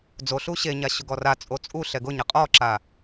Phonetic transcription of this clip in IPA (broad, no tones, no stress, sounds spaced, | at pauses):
d͡z o ɬ u ɕ e ɲ a ɕ ʊ ɡ ɔ r a t͡sʼ o t͡sʼ u ɬ ɛ ɡ ʊ ɲ a qʼ ɔ ǁ a